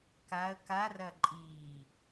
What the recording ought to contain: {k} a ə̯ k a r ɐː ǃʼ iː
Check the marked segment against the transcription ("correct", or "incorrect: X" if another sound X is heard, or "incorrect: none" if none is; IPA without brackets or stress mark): correct